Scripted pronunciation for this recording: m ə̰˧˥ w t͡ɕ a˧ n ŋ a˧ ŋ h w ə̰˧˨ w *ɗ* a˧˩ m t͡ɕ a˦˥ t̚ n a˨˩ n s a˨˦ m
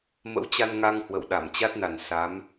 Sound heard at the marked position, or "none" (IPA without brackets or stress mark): ɗ